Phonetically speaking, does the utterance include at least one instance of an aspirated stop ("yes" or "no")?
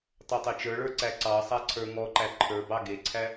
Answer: yes